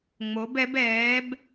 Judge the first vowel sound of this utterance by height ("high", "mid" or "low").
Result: mid